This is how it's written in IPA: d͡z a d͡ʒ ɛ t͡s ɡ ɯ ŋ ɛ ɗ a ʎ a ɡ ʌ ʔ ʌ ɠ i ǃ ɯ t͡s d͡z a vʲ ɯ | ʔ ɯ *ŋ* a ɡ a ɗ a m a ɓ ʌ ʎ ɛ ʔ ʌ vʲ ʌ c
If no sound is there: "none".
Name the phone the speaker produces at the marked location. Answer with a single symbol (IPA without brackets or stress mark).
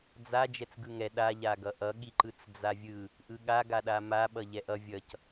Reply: ɠ